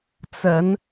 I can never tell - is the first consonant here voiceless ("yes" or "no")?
yes